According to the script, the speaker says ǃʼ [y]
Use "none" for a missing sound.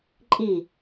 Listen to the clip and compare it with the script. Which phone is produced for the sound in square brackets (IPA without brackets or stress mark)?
i